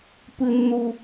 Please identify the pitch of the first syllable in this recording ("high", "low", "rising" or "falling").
high